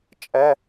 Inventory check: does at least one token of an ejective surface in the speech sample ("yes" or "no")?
yes